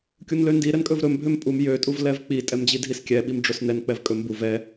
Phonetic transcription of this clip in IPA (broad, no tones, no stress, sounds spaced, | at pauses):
kʲ u n l ø n d i ɾ ɛ n kʼ ɵ v ɾ ɵ m bʱ ø m pʼ u m j ø tʼ u v l ɛ v k͡p i tʼ ɛ m d͡ʑ i dʱ i s kʲ ɛ ɓ i m ɖ͡ʐ ɵ s n ɛ n k͡p ɛ v kʼ ɵ m b u v ɛ